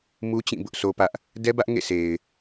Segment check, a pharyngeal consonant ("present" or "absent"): absent